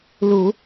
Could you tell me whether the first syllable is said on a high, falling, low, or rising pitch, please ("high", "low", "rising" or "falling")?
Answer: low